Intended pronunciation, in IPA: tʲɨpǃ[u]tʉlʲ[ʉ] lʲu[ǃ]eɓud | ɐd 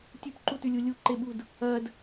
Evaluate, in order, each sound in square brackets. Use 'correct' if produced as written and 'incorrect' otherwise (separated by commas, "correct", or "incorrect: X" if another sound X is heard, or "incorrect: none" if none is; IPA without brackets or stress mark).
correct, incorrect: u, correct